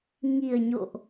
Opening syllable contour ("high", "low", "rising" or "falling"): low